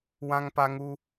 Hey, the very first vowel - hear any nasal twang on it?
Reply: yes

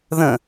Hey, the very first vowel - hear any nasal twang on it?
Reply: yes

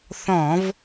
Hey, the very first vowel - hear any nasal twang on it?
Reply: yes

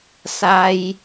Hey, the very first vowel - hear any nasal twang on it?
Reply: no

